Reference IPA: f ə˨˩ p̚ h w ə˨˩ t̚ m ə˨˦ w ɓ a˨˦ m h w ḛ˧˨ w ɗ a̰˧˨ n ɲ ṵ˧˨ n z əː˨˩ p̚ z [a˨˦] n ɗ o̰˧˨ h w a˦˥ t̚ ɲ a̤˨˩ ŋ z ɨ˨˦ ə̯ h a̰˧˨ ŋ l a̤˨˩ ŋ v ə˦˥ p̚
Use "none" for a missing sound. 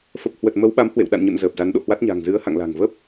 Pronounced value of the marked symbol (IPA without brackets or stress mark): a˨˦